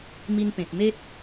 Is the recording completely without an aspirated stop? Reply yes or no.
yes